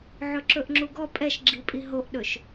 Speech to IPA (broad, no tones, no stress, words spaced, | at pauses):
ʕɵǁɵʔŋ͡ǁuɡɔ pʼɛʃɡ͡ǁipʼi ɦoʔɗɵʃ